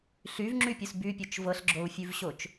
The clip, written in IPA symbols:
ɬyvŋ͡ǁypʲus bypʲot͡ʃ vɤɬɡ͡ǁou̯fʲʉvɕot͡ʃ

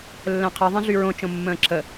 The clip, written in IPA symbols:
lːɛ̃qʰɛ ðˤɛ̃ɮyɹõ t͡ʃõmːə̃ːǁʰə

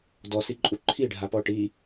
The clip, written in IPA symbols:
dɔsiǃʼu ǃʰiɖʱapɔ ʈi

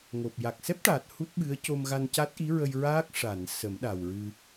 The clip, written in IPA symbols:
ŋo˨˩p̚ ja˨˩k̚sɛ˦˥p̚ʈaː˨˩t̚ hu˦˥t̚ ɓɨ˧˥ə̯ co˧mɣa˧nca˦˥t̚ ʔi˧˥ɹə˧j ɹaː˦˥k̚ ʂa˨˩˨n sə˨˩˦m ɗa˨˩wɹɨ˧

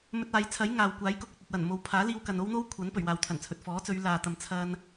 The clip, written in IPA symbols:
mɵ˧t̚aː˨˧j t͡sʰɐ˨˥j ŋaː˨w kʷaː˨˥jkʊ˨k̚ɵ˨t̚ ɐ˨t̚wɐ˨˩n mo˨wpʰaː˨˥liː˧w kɐ˨no˥wn̪o˥w kʷʰɐ˨˥n pɵ˨˩ɥwaː˨wt̪ʰɐ˨˩nt͡sʰɵ˨t̚ fɔː˨˥t͡sɵ˨˧ɥ laː˨t̪ɐ˨m t͡sʰɐ˧n

